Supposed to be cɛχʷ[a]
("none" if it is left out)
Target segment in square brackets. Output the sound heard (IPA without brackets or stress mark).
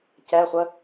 ə